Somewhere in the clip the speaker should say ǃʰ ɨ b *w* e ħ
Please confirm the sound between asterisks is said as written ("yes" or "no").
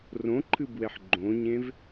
yes